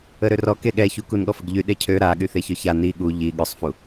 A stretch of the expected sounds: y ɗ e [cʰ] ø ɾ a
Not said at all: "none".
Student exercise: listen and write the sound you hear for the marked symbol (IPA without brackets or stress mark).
cʰ